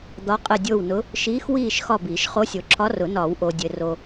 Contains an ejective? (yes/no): yes